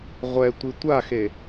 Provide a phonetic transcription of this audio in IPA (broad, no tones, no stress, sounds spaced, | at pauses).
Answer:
ʁʷ ɛ tʷ i tʷ a x e